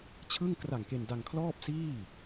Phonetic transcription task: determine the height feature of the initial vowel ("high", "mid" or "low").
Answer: high